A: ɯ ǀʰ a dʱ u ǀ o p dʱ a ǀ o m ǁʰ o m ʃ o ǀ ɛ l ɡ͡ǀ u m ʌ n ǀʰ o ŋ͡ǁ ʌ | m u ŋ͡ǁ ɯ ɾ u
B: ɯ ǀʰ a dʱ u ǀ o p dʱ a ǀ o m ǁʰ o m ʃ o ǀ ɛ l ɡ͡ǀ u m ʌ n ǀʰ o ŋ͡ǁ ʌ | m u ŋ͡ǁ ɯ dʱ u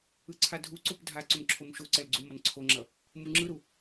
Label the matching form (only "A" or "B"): A